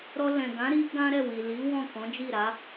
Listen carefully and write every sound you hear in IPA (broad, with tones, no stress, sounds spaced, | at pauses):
ɾ ɔ˧ l ɛ̃˨ ɡ ã˨˦ ɾ i˦ ɡ ã˦ ɾ ɛ˦˨ w i˨ l i˨˦ w ɔ̃˦˨ k ɔ̃˨˦ d͡ʒ i˦˨ ɾ a˨˦